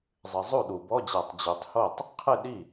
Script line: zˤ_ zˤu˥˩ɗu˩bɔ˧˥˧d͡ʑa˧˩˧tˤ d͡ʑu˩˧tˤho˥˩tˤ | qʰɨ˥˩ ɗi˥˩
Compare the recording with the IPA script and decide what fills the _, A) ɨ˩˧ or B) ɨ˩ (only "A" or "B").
B